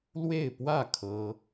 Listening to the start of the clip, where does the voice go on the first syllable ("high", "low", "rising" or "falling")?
falling